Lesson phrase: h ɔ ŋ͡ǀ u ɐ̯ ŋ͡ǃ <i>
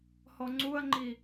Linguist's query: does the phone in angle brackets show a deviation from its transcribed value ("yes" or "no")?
no